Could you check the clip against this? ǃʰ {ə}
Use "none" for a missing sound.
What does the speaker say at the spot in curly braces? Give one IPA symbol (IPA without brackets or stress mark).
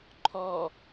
ɔ